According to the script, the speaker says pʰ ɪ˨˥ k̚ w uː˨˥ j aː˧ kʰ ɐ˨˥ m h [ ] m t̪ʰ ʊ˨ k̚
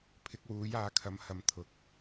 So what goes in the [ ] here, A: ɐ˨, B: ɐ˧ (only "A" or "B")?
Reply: A